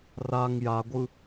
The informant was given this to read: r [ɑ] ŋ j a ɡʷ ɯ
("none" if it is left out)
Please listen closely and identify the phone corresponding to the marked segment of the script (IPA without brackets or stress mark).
a